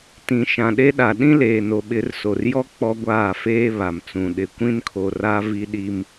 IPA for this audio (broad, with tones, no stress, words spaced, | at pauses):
tĩ˨ʃã˨ɗe˦ɗa˨ ɗĩ˦leː˨no˨ ɓɪ˨˦rso˨rjɔ˦ k͡pɔ˦ɡʷaː˦˨feː˦ βa˨mt͡sũ˨ ɗɪ˨kʷĩ˦nkʰo˨ra˦ vi˦ɗi˦m